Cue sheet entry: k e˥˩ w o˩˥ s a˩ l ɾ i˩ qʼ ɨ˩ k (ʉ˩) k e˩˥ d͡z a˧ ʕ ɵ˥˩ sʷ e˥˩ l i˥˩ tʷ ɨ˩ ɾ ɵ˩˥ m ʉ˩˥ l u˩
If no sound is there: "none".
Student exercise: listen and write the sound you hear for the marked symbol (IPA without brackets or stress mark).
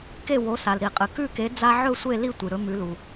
ʉ˥˩